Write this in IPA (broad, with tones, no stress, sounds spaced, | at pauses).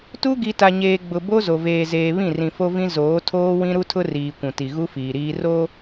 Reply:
t u˦ ɡ i˨ t a˨ ɲ eː˨ ɡ͡b ʊ˨ b o˦ z o˨ v eː˨ z eː˨ β ĩ˦˨ r ĩ˨ f o˦ v ĩ˦ z oː˨˦ tʰ oː˦ w ĩ˦ ɾ u˦ tʰ ʊ˦ r iː˨ kʷ ũ˨ t i˨ ɣ u˦ f iː˨ ɾ iː˦ r o˦